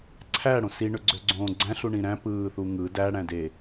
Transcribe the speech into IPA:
ǀʰæ ɽõsi ɳøɡ͡ǀøɡ͡ǀõːɡ͡ǀæ̃ ɬuɳĩɾæ̃ pɯːθuŋɯ dæ ɽæ̃de

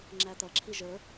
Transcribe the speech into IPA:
ŋ͡ǁæt̪ʌǁʰi ʒə˞

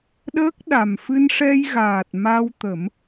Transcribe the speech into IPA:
ɗəː˦˥k̚ ɗa˨˩mfɨ˧nʂɛ˧jɣaː˨˩t̚ ma˧wt̪ə˨˩˦m

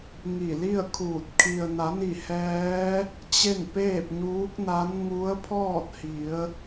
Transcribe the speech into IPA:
ŋi˧˩li˥˨ə̯kʰuː˧˩t̚ kʰi˩ə̯na˩˧ni˧˩ hɛː˧˥ | t͡ɕe˥˨npeː˥˨p̚ɲuː˧˥k̚na˧˥n ŋu˧˥ə̯pʰɔː˥˨t̚hi˩˧ə̯

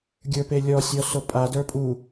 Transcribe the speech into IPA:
ɡʲə˞pelʲɔsʲɔ sopʼa də˞pʼu

